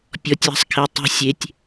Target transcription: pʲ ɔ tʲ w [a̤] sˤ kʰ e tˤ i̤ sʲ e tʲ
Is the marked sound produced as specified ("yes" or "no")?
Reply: yes